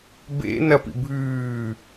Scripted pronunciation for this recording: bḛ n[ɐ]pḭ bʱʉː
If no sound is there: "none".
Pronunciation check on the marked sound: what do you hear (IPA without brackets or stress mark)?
ɐ